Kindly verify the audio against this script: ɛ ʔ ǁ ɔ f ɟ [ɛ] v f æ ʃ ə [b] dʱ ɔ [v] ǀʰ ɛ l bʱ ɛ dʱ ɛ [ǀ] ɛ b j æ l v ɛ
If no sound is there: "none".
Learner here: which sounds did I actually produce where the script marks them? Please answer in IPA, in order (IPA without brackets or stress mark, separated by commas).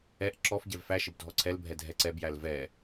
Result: ɛ, b, none, ǀ